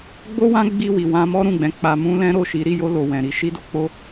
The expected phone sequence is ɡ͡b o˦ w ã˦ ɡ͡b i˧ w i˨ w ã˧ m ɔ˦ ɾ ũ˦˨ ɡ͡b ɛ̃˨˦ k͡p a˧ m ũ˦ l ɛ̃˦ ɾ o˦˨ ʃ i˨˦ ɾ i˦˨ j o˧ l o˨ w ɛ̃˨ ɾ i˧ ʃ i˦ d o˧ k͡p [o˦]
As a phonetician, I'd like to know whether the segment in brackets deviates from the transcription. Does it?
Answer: no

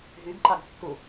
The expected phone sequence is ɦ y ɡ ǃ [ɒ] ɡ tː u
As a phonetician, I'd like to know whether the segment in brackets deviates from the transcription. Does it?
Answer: yes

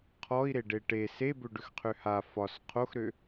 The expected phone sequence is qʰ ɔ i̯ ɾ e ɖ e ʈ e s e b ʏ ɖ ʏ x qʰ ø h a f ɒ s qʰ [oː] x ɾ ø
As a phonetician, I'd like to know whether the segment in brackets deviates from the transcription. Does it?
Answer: yes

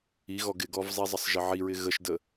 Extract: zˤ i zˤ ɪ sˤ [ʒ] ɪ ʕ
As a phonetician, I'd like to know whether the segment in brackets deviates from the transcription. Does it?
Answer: no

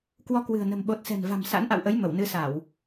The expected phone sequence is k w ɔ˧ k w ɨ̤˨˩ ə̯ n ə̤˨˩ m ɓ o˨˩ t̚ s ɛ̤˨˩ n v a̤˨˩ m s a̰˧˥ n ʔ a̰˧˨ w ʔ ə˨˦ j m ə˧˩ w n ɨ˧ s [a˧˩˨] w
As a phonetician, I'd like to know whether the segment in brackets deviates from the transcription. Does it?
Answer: no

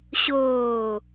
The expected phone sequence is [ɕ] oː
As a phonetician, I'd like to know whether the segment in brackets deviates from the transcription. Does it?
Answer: no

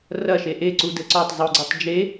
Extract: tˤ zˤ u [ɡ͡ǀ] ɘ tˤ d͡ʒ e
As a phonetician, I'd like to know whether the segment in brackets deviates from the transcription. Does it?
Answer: no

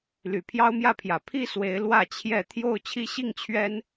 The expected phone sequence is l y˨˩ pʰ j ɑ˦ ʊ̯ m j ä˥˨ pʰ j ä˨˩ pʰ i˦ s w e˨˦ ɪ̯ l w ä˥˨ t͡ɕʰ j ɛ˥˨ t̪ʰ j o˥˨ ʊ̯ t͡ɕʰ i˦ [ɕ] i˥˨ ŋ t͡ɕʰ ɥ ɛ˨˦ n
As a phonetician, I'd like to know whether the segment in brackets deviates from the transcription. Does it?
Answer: no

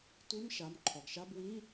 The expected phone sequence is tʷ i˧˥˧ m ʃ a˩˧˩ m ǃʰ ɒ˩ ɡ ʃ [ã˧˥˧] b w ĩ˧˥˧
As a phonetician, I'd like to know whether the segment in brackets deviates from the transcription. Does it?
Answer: yes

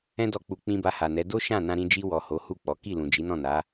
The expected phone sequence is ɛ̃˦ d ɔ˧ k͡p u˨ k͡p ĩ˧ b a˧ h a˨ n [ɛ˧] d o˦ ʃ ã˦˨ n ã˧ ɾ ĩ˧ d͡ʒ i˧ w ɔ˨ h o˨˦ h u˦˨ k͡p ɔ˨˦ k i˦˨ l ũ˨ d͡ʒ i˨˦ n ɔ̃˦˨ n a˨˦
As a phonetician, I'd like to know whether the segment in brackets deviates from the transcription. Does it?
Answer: yes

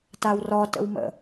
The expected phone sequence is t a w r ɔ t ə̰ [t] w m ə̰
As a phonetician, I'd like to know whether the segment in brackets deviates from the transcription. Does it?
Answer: yes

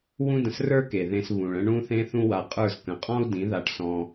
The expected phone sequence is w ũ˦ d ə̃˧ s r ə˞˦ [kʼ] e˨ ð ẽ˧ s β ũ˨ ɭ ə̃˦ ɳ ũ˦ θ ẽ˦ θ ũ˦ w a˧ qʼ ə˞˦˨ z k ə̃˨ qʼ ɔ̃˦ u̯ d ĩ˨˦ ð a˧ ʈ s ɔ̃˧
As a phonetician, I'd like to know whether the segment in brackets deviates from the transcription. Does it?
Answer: yes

